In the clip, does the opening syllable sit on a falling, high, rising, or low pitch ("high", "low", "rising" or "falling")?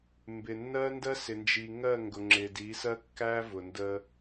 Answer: low